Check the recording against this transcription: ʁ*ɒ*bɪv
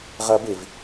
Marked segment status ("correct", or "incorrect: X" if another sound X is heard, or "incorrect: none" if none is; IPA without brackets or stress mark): incorrect: ʌ